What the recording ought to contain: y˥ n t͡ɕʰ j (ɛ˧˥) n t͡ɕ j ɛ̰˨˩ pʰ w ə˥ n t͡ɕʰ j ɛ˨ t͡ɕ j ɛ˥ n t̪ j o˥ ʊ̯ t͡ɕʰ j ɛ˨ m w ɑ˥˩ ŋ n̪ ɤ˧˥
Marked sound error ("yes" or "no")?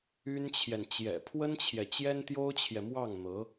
yes